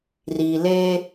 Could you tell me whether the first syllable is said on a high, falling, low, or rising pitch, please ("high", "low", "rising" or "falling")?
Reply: low